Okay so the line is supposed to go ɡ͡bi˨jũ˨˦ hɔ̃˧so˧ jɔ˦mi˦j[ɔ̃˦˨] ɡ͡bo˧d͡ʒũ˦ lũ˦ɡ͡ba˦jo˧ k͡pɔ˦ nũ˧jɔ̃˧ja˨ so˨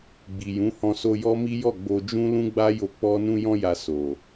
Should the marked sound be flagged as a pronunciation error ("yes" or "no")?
yes